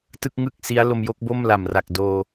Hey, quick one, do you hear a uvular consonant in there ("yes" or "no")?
no